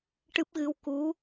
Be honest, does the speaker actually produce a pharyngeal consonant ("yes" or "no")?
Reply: no